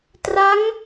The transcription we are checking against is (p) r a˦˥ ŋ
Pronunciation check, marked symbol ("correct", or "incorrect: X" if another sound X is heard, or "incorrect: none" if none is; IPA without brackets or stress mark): incorrect: t